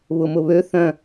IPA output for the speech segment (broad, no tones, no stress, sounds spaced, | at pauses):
β ʊ m ʊ β ø θ œ̃